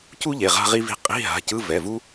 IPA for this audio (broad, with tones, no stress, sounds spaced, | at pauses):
c u˥ ʎ e˩˧˩ ʁ a̤˥ ʁ i˥ v i̤˥˧ qʼ i̤˧˥˧ ɦ a̤˩˧˩ c ɯ˧˥˧ v ɛ˩˧˩ v u˥